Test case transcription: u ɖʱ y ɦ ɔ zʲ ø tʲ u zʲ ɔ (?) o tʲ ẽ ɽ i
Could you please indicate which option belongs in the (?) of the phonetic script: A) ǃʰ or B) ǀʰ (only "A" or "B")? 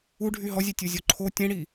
A